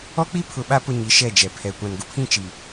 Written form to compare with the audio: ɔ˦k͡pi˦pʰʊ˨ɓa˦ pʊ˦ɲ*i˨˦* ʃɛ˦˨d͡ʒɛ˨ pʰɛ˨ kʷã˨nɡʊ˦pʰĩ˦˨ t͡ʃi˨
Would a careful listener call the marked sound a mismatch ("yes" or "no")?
no